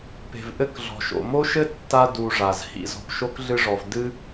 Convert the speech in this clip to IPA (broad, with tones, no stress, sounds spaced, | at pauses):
p e̤˩ v ʔ ɘ˦ k ɮ ɔ̤˩ ʃ o̰˩ m o˥ ʃ ɘ˥ tː a˥ d u˨ ʐ a˩ z h ḭ˨ z ɔ̤˨ p ʃ o˥ k ɮ ɨ˦ ʐ ɔ˨ v d ɨ˥